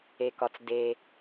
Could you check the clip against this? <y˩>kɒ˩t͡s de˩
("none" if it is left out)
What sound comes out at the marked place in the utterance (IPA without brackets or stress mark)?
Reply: e˩